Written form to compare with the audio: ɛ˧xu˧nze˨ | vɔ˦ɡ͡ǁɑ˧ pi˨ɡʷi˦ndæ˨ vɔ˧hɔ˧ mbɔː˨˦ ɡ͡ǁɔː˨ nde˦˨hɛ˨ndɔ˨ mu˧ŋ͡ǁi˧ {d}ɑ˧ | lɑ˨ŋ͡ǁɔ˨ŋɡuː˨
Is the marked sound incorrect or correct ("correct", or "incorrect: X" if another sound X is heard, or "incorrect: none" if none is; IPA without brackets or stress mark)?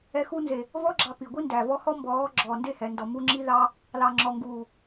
incorrect: ð